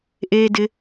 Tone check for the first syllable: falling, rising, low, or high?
low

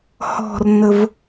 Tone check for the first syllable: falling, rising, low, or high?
falling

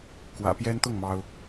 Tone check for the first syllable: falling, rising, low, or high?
low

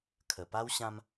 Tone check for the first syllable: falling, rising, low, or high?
low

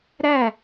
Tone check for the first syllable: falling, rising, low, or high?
falling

